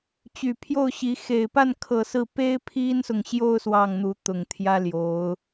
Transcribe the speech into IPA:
t͡ɕ y˨˩ pʰ j o˥˩ ʊ̯ ɕ i˧˥ x e˨˩ ɪ̯ p a˥˩ n kʰ ɤ˨˩ s ɹ̩˥˩ p e˥ ɪ̯ pʰ i˥ n s ʊ˨ ŋ ɕ j o˥˧ ʊ̯ s w ɑ˥˩ ŋ n̪ u˧˥ t̪ ʊ˨˩ ŋ t̪ʰ j ä˥ l j o˧˥ ʊ̯

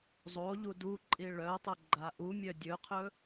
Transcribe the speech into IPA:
zˤ o ʎ u d u ǃʼ i ɭ œ tˤ ɵ ɡ͡ǃ a ʔ u mʲ œ dʲ ɵ qʰ ɵ

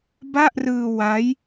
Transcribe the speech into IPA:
b a˥˩ ʔ r ɯː˧ w a˦˥ j

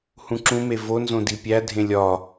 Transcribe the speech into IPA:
h ũ ǁ ũ m e v o n z õ d i pʲ æ dʱ ẽ lʲ ɒ

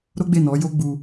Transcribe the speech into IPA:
ɾ o˦ ɡ͡b e˦˨ n ɔ˨˦ j o˦ ɡ͡b u˧

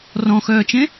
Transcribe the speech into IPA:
r ɔ̃ x œː t͡ʃ ẽ

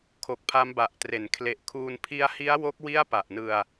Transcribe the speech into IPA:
kʰ o˨˩ k̚ pʰ a˦˥ m b a˨˩ ʔ t r e˩˦ n kʰ l e˨˩ ʔ kʰ uː˧ n pʰ i˧ a̯ h i˦˥ a̯ w o˦˥ k̚ w i˥˩ a̯ p a˨˩ ʔ n ɯ˧ a̯

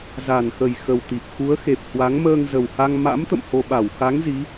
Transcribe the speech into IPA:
z a˨˩ n x ə˨˩ j x ə˨˩ w t̪ i˨˩ p̚ x u˨˦ ə̯ x e˨˩ p̚ h w a˨˦ ŋ m əː˧ ŋ z ə˨˩ w h a˧ ŋ m a̰˧˥ m t̪ ə̰˧˨ m h o˧ ɓ a˧˩ w x a˨˦ ŋ z i˨˦

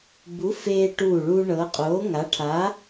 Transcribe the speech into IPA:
b u˨˥ f eː˧ ʈ uː˧˩ ɭ uː˧ ɳ ɤ˨˥ qʼ oː˨˥ ŋ a˨˥ ʈʰ a˨˥

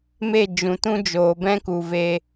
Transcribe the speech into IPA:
m e˦˨ d͡ʒ ũ˨ t ũ˦ d͡ʒ oː˨ b ɛ̃˦ k u˨ v e˧

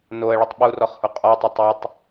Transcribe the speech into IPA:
n o ə̯ ɭ ə tˤ ɓ u r ɔ χ h u qʼ ɔ tˤ ə tˤ e tˤ

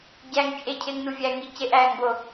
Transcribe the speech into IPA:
ɟ æ ŋ t͡ʃʼ e cʰ e ŋ n u vʲ æ ŋ i c e ʔ æː ŋ b o

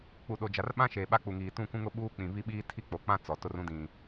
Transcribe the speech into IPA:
k͡p u˨ ɗ o˨ d͡ʒ a˨ r ɓ ã˦ ʃ eː˨ ɓ a˦ k͡p u˨ ŋ iː˨ t ũ˦˨ k ũ˦ ŋ ʊ˦ ɓ uː˦ k͡p ĩ˨ β i˦ ɓ iː˦ tʰ i˦˨ k͡p o˨ k͡p ã˦ t͡s ɔ˨ t ʊ˦ r ũ˦ d ĩ˨

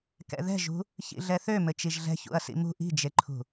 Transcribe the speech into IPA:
k ɛ̰ ð ɛ̤ ʒ ṳ | ç ḭ ɮ ɛ θ ø m ɘ t͡ʃ i ʒ ɮ ɛ̤ ç ṵ ɐ̯ s ḭ m ṳ ʔ i̤ d͡ʒ e ǃʰ ṳ

